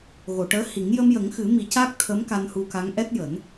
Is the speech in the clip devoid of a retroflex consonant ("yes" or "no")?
no